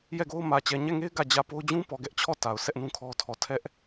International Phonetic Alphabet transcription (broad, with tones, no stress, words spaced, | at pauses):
jɛ˦˨ɡo˦ʊ̯ mä˨ t͡ɕɛ˨ɲɛ˦˨ŋe˦ɪ̯ ɡä˦˨ d͡ʑä˦˨po˦ʊ̯ d͡ʑũ˦pɔ˨ɡɛ˦ʔt͡ɕʰɔ˦˨ ta˨ʊ̯sɛ˦ʔnũ˦ kʰɔ˦tʰɔ˦˨ tʰɛ˦ʔ